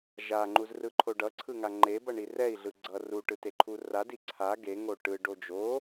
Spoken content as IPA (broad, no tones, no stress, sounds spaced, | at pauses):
ʒ a ŋ͡ǃ u z r ɯ ǃʰ o ɖ ʌ ǀʰ ɯ ŋ a ŋ͡ǃ e b ʌ ɳ i r ɛ i̯ ɮ ɯ ɡ͡ǀ ʌ r u ʈ ɯ t e ǃʰ u r a d i ǀʰ a ɡ e ŋ o ʈ ɯ ɖ o d͡ʒ o